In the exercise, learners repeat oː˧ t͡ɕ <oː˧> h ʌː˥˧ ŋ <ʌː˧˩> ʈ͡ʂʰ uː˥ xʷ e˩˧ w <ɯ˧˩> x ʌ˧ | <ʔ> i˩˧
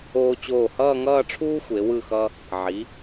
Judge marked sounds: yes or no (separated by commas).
no, no, yes, no